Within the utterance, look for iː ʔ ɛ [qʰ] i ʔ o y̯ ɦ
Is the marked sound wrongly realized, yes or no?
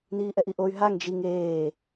yes